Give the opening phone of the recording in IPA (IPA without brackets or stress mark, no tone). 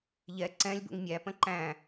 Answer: ʎ